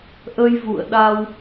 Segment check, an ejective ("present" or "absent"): absent